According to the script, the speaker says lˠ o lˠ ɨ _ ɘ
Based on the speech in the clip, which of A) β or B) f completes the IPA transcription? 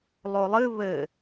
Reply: A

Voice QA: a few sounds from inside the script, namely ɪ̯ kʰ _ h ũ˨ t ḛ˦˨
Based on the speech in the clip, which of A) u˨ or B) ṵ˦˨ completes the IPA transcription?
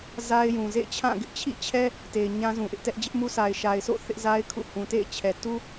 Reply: B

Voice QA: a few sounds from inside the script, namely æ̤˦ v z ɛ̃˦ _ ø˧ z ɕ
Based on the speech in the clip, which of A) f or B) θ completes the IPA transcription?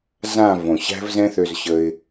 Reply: B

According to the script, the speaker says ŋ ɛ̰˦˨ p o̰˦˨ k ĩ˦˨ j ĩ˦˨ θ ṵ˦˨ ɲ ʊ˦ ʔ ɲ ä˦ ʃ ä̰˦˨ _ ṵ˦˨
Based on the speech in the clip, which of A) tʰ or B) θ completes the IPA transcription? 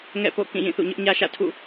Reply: A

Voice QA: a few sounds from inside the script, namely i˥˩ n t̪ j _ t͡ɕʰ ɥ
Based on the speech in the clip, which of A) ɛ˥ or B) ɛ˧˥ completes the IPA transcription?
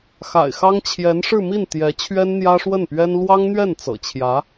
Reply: B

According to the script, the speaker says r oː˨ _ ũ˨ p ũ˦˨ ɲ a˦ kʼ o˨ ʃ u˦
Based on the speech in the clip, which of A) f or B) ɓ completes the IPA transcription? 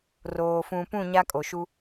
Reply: A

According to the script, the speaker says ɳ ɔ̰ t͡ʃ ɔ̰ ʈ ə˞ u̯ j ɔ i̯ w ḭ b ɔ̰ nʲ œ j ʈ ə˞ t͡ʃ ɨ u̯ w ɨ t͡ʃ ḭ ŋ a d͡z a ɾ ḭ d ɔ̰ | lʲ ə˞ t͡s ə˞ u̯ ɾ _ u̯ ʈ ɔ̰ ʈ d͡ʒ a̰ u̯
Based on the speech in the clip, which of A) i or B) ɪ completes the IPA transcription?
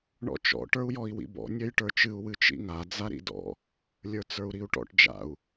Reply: A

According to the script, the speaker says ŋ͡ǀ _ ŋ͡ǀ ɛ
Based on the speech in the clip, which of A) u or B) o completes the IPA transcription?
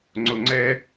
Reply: B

